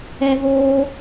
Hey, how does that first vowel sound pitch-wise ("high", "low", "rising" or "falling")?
high